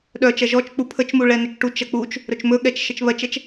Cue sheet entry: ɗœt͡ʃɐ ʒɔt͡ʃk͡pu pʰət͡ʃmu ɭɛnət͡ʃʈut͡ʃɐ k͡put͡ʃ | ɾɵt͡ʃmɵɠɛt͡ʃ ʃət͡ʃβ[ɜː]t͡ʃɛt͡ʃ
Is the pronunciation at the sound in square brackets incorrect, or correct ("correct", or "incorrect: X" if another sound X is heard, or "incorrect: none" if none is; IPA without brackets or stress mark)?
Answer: incorrect: ɜ